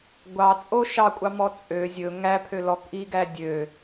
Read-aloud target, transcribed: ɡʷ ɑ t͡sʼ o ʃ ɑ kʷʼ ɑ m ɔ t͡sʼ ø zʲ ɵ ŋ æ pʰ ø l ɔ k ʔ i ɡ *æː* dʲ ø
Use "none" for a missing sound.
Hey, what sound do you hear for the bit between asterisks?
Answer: æ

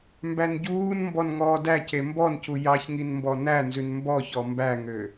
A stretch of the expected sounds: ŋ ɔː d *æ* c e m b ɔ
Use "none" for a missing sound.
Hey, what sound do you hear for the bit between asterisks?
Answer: æ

